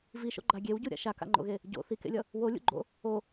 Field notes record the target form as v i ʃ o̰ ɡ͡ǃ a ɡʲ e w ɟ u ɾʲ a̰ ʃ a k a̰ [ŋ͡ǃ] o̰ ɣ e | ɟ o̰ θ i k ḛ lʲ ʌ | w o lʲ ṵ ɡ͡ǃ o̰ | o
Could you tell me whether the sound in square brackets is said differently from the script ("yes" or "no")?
no